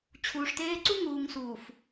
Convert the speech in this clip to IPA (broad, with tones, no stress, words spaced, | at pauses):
t͡ɕʰuː˨ʂteː˦ ǀu˦ŋuː˨ŋsuː˨f